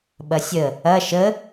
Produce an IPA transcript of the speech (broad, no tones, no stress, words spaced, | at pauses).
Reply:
ɓɐsʲə | ɐ ʃə